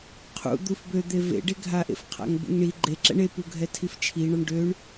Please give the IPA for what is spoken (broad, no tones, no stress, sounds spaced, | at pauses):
qʰ ṵ d̪ u f b ø d̪ e v ḛ ɖ e ɡʱ a ʔ ḛ f qʰ a̰ ŋ b ṵ ŋ ɳ i ɡ͡ǃ e ǁ ɛ̰ ɳ e p u ɡʱ ɛ tʰ i f t͡ʃʰ i ɳ ɒ ɳ ɖ ø ɳ